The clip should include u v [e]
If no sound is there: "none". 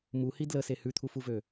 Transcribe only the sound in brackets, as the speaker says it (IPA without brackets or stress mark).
ø